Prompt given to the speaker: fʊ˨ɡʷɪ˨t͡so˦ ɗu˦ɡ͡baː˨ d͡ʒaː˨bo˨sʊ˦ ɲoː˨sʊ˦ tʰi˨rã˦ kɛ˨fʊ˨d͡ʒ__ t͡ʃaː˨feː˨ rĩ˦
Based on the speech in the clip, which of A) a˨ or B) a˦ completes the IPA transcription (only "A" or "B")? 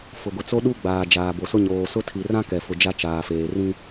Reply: B